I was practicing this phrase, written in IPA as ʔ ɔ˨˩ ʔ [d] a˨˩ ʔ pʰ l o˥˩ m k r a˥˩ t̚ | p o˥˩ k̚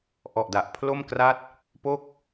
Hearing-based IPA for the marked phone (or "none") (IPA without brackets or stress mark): d